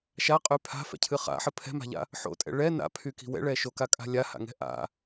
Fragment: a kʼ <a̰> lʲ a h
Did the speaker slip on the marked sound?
yes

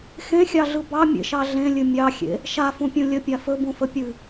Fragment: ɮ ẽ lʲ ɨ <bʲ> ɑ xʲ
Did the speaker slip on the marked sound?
yes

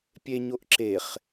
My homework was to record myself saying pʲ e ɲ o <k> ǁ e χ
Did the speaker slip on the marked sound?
yes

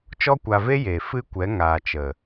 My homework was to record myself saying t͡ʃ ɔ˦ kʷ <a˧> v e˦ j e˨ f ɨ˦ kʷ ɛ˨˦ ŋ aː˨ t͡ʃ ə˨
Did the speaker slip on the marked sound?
no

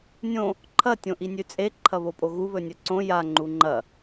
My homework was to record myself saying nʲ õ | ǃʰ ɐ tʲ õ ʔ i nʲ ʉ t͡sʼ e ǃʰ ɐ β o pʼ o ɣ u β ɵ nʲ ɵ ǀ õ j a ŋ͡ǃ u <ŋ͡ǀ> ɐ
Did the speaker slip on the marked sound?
yes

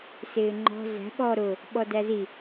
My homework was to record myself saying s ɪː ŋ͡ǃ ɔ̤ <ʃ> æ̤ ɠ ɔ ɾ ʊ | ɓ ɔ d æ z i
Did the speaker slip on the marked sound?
yes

